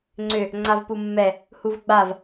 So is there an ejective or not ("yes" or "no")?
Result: no